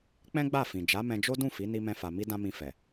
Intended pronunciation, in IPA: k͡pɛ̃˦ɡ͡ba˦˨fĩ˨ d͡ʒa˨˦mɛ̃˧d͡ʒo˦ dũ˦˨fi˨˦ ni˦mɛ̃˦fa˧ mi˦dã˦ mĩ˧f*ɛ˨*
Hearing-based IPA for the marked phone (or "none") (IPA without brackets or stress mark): ɛ˨